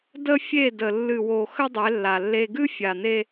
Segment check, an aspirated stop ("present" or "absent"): absent